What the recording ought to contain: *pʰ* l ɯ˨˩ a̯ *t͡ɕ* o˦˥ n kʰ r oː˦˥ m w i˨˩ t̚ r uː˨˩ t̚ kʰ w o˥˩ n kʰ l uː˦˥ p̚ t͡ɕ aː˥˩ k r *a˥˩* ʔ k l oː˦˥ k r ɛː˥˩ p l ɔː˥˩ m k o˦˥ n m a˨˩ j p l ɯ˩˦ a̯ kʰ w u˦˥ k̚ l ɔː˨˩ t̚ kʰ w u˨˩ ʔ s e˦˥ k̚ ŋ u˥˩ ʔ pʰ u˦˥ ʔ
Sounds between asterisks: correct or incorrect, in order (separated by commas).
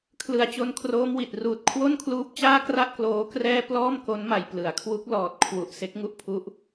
incorrect, correct, correct